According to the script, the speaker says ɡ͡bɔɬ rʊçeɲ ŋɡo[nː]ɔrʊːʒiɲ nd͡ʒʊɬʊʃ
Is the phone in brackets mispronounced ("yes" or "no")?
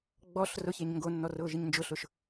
no